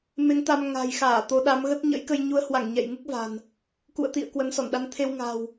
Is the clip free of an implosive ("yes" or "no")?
no